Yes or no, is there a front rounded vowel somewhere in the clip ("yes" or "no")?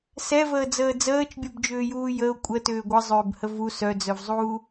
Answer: yes